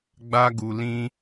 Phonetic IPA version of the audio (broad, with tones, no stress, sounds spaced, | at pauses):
ɡ͡b a˦ ɡ u˧ l ĩ˦